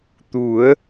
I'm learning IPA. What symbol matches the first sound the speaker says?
t̪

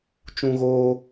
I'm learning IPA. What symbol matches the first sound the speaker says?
t͡ʃ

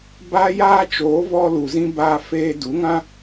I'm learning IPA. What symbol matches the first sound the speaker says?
b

